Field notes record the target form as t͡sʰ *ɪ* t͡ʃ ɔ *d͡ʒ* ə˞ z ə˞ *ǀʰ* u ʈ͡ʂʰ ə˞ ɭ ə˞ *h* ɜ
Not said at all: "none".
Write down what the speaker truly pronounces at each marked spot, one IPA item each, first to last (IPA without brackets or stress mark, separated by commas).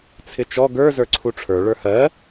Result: ɪ, ɡ, ǀʰ, h